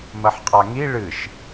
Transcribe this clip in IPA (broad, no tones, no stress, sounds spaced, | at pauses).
m ɐ ħ qʼ a ŋ i ɭ ɨ ʃ